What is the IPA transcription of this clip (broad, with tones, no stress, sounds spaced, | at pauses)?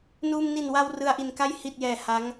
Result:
n uː˧ m n i˨˩ n w a˧ w r ɯ˧ a̯ ʔ i˨˩ n k a˥˩ j h i˨˩ t̚ j ɛː˩˦ h a˦˥ ŋ